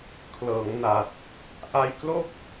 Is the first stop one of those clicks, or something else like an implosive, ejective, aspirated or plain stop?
aspirated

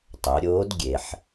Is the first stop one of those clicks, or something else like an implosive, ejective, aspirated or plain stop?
plain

